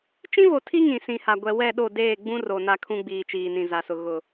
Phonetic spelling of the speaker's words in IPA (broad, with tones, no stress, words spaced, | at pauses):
t͡ʃĩ˦vo˨tʰi˦ ŋĩ˨sĩ˨ha˨ ɡʷɛ˨wɛ˦˨ɗo˦˨ deː˦˨ɡ͡bũ˦ro˨ na˦ kʰũ˦ɡ͡biː˨t͡ʃiː˨ nĩ˨za˨sʊ˨ ɣʊ˨